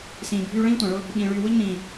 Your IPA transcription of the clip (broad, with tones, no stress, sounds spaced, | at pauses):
s ĩː˨ bʱ yː˦ ɭ ĩː˦ tʷ ã˨ ɭ ʊ˦ | ɓ ĩː˨ ɭ yː˨ w ʊ˦ ʎ n ĩː˨